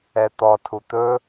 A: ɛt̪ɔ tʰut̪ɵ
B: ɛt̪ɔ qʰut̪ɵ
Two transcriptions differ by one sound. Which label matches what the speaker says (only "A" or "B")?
A